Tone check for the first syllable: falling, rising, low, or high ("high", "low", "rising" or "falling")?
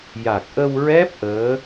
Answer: low